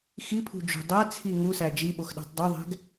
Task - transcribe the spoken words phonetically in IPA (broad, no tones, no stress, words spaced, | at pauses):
xipʰṳd͡ʒṳ dˤæt͡sʰi ŋusæ d͡ʒiɓoxɗæ̤tˤ dˤoðˤæ̤ɡ